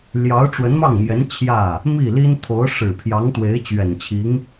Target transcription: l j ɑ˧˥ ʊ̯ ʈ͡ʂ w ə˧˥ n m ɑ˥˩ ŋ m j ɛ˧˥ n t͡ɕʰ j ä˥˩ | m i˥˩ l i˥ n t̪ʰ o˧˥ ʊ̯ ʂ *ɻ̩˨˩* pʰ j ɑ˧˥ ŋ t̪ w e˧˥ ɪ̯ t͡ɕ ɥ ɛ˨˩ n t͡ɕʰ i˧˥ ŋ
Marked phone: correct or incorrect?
correct